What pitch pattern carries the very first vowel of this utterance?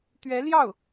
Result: rising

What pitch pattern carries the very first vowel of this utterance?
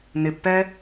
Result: low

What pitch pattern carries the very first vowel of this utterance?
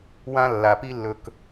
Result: high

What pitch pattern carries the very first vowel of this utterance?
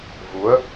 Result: rising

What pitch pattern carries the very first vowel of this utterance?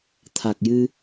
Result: low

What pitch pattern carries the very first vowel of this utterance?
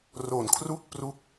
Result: low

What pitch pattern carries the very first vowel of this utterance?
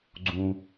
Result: high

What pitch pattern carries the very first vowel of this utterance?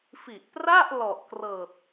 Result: low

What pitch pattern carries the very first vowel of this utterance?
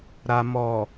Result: low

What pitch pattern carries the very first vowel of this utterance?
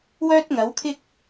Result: high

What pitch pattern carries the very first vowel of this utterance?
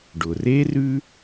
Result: low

